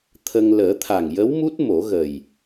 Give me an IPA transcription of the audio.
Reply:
t̪ʰ ə˧ ŋ l əː˨˩˦ t̪ʰ a˨˩ ŋ j ə˧˥ w m u˦˥ t̚ m o˨˩˦ ɣ ə˨˩ j

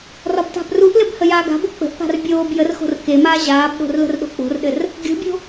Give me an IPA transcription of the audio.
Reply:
r ɒ b t a̤ b r u ʔ l ɘ b h ə j aː ɡ a̤ b o k͡p ə̤ ʔ p a̤ r bʲ oː b j ə r x o̤ r k e m aː ʑ aː b ɗ o̤ r l ə̤ r ɗ o̤ k͡p o̤ r ɗ ɘ r | ɡʲ o̤ bʲ o̤

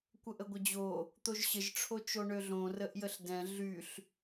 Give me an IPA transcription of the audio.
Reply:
kʷ ə ʔ ə ɡʷ ə d͡ʑ o | t̪ o ʒ ɕ ə ʒ ʈ͡ʂʰ o t͡ʃ o ɳ ø ɮ õ r ə ʔ j ə ɬ d ɛ̃ ɮ y ɬ

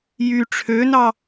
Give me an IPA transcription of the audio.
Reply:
j y ʈ͡ʂʰ ø n ɑ

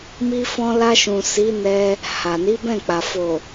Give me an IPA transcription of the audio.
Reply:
m i˧ f ɔ̃˧ l a˧ ʃ ũ˨ s i˨˦ n ɛ˧ | h a˨ n i˨˦ b ɛ̃˦˨ k͡p a˨ f o˨

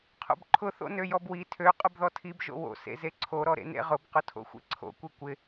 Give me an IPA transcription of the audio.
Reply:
qʰ o̰ b ǃʰ ʊ θ o̰ n ø j ɔ b w i tʰ ø qʼ ʊ b ð ɔ tʰ i b ʒ o̰ w o̰ s ḛ z e ǀʰ o ɾ ɔ ɾ ḛ n ḛ ʁ ʊ b q ʊ tʰ o̰ xʷ ḛ ǀʰ o̰ kʷ i kʷ ɪ

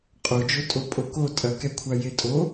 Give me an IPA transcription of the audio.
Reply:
qʼ o d͡ʒ o tʼ o pʼ o k o tʼ ɐ k ɛ kʷʰ a j e tʼ o

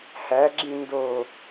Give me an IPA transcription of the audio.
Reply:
h æ ɡ͡ǁ ĩ n d o

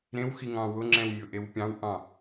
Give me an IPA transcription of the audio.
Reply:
ɾ ẽ w x i ŋ ɑ̃ w ʊ ŋ͡ǁ ɛ̃ w mʲ ʊ ʔ e w pʲ ɑ̃ w ʔ ɑ̃

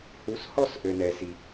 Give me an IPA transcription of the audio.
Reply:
h u˨˦ s h ɔ˦˨ s ʔ ø˨ n ɛ˨ s i˨

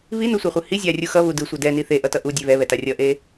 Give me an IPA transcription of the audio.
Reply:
β i n u sʷ ɛ χʷ ɯ h i zʲ a rʲ u x ʌ β u d ɯ sʷ ɛ d ɛ n i θ e ʔ ʌ t ʌ ʔ u dʲ e β ɛ β ɛ t a rʲ ʌ ʔ e

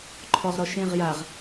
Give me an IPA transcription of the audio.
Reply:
ǃʰ ɔ ʁ ɾ ɔ ʃ ẽ ʁ j a ʁ

